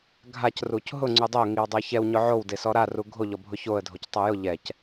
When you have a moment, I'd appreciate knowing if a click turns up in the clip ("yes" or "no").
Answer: yes